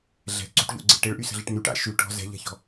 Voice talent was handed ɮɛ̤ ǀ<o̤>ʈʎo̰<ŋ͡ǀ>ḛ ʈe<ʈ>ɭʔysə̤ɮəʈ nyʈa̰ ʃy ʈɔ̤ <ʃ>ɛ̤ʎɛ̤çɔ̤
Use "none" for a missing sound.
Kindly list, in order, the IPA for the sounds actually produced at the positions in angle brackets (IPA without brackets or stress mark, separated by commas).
o̤, ɡ͡ǀ, none, z